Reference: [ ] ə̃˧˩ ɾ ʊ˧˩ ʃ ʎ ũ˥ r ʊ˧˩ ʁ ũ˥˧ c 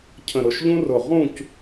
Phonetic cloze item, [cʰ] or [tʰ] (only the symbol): cʰ